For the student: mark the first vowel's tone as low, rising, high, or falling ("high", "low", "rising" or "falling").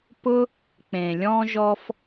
high